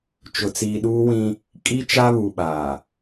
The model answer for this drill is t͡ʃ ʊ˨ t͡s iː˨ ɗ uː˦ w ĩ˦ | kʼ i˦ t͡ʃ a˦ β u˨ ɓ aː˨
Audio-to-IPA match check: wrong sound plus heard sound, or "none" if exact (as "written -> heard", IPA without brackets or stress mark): none